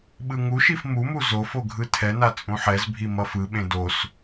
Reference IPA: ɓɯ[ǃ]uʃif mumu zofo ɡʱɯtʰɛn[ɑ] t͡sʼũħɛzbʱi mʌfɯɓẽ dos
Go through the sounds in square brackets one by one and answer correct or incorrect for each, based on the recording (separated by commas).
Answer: incorrect, incorrect